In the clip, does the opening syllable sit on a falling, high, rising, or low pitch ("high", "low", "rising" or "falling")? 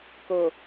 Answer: low